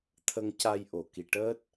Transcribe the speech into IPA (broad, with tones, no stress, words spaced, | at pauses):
t̪ʰə˧ŋca˧j ʔo˨˩˨ki˨˩ʈəː˦˥t̚